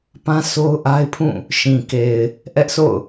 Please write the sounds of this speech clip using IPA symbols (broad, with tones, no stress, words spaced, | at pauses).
pã˦ so˦ʊ̯ʔa˦ɪ̯ pʰũ˦˨ | ʃĩ˨ke˨ɪ̯ | ʔɛ˦ʔsʰo̰˦˨ʊ̯